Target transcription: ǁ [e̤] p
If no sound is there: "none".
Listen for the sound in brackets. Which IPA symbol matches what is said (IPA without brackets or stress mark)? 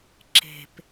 e̤